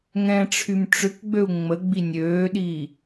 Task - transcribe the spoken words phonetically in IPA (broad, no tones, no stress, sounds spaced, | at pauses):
ŋ ɛ̃ ʈ͡ʂʰ y m ʈ͡ʂ ʏ k ɡ͡b ø u̯ ŋ͡m ə ɡ͡b i nʲ øː ɗ i